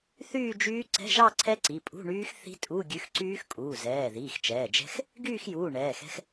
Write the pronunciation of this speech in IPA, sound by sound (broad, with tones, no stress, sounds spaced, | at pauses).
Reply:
θ yː˥˧ d͡ʒ yː˦˥ ǀ ɛ̤˧˥˧ ʒ ɑ˥˧ ǀʰ ɛ˦˥ ǀ i˩˧˩ pʼ ṳ˧˥˧ ɳ yː˦˥ x θ i̤˦˥ tʼ u˧˥˧ ɡʲ ʉ˨˥ x ǀ yː˦˥ x kʼ uː˩˧˩ z ɛː˩˧˩ ð iː˩˧˩ x t͡ʃ ɛː˩˧˩ d͡ʒ ɛ̤˦˥ x | ɡ yː˥˧ x j uː˩˧˩ ɳ ɛː˩˧˩ x ɛ̤˦˥ x